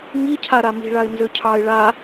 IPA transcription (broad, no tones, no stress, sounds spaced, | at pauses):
ŋ i cʰ a ɾ a m i̤ ɭ a ɪ̯ n z ʏ cʰ ɑ ɪ̯ ɭ a